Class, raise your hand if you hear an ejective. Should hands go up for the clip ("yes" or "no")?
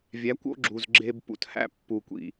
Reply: no